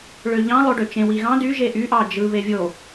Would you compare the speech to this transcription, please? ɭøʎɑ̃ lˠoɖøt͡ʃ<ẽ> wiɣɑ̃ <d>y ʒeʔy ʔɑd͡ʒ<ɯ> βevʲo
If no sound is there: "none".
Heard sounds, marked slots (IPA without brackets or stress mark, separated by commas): ẽ, d, ɯ